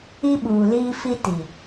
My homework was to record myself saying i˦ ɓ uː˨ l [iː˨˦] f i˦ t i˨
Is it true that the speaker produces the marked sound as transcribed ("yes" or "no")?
no